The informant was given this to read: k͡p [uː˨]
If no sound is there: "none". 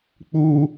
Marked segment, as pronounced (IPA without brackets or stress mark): uː˦